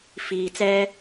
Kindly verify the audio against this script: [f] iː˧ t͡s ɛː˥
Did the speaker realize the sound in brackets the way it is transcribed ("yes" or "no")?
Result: yes